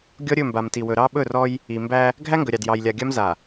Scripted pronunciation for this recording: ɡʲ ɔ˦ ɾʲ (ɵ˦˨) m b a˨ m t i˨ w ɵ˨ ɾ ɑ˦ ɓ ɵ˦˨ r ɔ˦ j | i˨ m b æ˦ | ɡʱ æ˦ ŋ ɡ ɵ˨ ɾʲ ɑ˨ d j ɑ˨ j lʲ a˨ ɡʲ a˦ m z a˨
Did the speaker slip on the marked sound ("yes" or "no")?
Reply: no